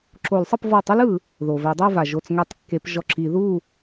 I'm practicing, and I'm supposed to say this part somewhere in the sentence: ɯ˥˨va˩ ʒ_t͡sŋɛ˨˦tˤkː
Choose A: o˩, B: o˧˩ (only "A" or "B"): B